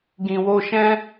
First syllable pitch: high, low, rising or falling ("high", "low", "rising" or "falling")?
low